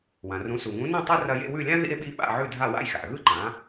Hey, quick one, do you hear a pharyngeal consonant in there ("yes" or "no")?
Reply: yes